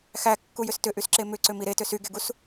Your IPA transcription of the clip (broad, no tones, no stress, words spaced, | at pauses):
xækːujʏs tʏʔysǁe mʏǀʏmi ɾetʏ syɡeɡus